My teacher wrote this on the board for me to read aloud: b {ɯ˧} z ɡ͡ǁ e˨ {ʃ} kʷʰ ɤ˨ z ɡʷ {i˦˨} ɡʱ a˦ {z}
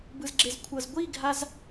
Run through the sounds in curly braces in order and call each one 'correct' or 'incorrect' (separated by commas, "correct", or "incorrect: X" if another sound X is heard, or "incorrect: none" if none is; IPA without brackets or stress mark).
incorrect: ɯ˨, incorrect: z, correct, correct